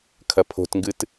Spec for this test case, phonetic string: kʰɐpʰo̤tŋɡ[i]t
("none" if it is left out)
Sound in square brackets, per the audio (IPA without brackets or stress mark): ɨ